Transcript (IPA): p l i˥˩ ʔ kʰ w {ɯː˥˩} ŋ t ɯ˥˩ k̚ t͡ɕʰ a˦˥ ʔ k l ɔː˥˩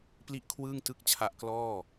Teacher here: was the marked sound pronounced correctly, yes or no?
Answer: yes